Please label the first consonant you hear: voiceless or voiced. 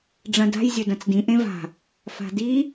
voiced